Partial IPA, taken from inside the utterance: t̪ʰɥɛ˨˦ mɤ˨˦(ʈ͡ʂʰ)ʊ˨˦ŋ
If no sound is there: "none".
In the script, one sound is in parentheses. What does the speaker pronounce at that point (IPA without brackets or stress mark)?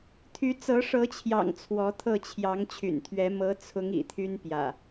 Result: t͡sʰ